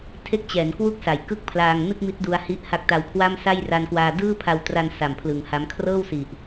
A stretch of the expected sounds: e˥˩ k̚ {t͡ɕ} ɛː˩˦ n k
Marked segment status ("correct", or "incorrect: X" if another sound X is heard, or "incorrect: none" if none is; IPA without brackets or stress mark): correct